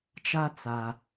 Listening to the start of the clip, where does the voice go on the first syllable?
high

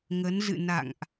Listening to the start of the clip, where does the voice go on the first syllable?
rising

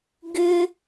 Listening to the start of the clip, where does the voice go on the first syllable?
high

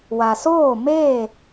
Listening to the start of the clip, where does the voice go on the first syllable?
low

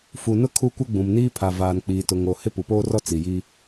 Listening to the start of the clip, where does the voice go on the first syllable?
low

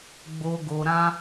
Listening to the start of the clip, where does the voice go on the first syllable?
low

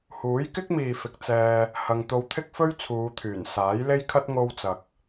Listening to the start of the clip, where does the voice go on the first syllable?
rising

